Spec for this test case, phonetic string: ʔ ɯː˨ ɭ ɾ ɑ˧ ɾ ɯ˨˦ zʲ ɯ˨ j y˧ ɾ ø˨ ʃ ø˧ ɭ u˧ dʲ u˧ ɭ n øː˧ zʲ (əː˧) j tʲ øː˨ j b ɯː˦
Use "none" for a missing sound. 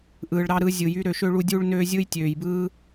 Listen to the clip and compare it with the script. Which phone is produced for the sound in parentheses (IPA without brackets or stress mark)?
ɯː˧